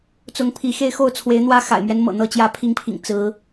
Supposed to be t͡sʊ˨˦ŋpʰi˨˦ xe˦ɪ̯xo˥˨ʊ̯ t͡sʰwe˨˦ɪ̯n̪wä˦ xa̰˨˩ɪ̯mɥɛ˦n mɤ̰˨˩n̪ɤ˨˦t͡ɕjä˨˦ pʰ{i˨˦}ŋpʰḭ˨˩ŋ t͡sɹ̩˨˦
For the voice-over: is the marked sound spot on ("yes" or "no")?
yes